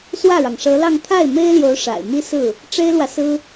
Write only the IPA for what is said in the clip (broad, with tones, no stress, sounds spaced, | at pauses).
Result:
s w ä˥˩ ɻ ɑ˩ ŋ ʂ ɤ˧˥ l ɑ˥˧ ŋ t̪ʰ a˥˩ ɪ̯ m e˥ ɪ̯ l j o˧˥ ʊ̯ ʂ a̰˨˩ ɪ̯ m i˥ s ɹ̩˥˩ | ʈ͡ʂ e˥ ɪ̯ l w ä˨ s ɹ̩˥